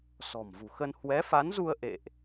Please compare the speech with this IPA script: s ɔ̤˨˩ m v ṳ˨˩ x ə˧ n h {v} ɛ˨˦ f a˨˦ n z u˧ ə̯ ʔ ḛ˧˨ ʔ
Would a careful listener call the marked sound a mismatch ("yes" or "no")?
yes